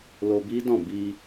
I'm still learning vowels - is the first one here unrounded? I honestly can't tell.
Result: no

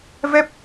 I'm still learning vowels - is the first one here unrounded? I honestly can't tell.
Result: yes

